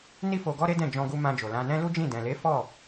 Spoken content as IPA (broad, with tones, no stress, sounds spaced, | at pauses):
n i˦ f o˧ ɡ ɔ˦ ɾ e˦ d ɛ̃˦˨ d͡ʒ ɔ̃˧ ɡ u˧ m ã˧ d͡ʒ o˨ l ã˧ n ɛ̃˦ l u˦ d͡ʒ ĩ˦˨ d ɛ̃˨ l e˨˦ f ɔ˦˨